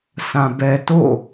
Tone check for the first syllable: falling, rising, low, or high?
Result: low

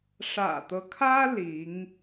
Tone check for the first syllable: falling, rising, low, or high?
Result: low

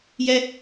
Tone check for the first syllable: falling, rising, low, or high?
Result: high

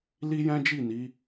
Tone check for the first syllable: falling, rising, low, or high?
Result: high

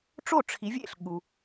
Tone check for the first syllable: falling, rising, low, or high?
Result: falling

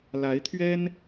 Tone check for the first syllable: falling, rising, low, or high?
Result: rising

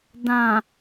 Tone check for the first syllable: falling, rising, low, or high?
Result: low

